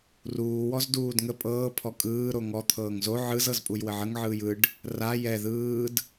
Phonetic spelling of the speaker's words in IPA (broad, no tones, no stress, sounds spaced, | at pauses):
r uː w ɔ z d uː d ŋ ə pʼ ɤː pʰ ɔ kʼ ɯː ɾ o ŋ ɔ t̪ʰ ɤː ŋ z o ʕ ɯ z ɤ z pʼ u j w ə ʕ ə ŋ ʕ ɯː j ɯ ɖ | r a j ɛ ð ɯː d